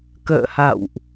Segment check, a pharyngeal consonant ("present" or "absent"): absent